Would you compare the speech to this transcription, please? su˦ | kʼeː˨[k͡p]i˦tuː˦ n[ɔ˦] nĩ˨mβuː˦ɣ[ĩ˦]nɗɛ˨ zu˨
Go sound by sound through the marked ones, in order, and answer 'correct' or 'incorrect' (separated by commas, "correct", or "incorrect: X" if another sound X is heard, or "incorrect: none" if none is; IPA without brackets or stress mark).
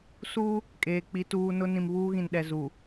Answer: correct, incorrect: ʊ˦, incorrect: ĩ˨